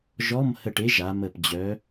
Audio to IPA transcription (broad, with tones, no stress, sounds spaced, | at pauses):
ʒ ɔ˧˥˧ m h ə˧˩ ʈ e˨˥ ʒ a˩˧ m ə˧˩ p d͡ʑ œ˨˥